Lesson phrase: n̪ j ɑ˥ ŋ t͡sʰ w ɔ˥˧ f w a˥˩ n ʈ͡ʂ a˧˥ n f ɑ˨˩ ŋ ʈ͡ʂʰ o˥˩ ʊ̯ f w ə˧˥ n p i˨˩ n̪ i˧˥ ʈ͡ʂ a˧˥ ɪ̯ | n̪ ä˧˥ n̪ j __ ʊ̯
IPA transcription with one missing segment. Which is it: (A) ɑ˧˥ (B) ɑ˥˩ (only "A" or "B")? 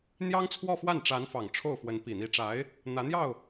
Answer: B